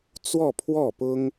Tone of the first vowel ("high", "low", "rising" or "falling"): falling